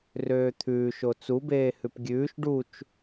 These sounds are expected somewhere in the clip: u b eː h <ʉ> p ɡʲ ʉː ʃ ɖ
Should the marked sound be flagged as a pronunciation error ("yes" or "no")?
no